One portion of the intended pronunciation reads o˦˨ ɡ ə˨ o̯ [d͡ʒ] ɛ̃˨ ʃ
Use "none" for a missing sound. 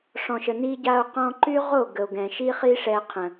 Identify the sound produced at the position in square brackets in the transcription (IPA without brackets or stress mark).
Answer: ɡ